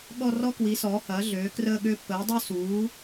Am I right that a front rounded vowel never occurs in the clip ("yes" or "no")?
no